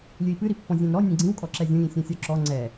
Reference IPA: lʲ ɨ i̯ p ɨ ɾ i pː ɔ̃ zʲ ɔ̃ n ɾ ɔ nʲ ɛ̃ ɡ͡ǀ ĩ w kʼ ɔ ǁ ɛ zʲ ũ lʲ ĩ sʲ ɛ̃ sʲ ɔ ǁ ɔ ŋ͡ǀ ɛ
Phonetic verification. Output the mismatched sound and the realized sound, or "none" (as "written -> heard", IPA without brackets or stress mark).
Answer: none